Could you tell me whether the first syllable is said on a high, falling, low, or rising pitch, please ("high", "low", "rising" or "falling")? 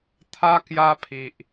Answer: high